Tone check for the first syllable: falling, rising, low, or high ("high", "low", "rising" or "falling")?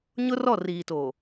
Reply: high